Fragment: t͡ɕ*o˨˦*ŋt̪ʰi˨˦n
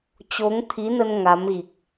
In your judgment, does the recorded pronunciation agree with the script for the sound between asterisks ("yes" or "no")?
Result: yes